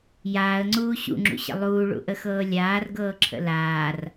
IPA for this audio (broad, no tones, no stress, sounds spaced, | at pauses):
j aː ə̯ ŋ͡ǀ uː ɕ ṵ ŋ͡ǁ ṵ ɕ ə̰ lˠ uː ɭ ṵ ʔ ə x ɤː lʲ aː r ɡ ɤː ǁʰ ə̰ l aː r